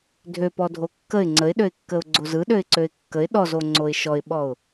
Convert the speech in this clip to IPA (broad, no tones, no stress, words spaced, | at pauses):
dʱøpɔdʱo kːəɪ̯ ŋ͡ǀəɪ̯ɗøɪ̯kːəʊ̯ ɡ͡ǀozɯ ɗøɪ̯ǀøɪ̯kːəɪ̯ ɗɔzo ŋ͡ǀoɪ̯ʃɔɪ̯ɓɔʊ̯